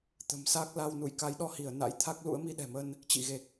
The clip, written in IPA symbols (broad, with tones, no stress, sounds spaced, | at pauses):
t̪ ə̤˨˩ m s aː˦˥ k̚ l a˧ w n ṵ˧˨ j k a˨˦ j ɗ ɔ˧ h i˧˩ ə̯ n a̰˧˥ j t̪ʰ a˦˥ k̚ l ṵ˧˥ ə̯ m i˧ ɗ ɛ̤˨˩ m ə˧ n | t͡ɕ ḭ˧˨ ɣ e˨˩ k̚